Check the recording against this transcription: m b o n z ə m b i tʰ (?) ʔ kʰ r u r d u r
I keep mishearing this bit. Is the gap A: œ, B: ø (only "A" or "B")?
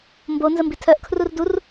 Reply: A